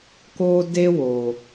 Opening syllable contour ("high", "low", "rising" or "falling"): high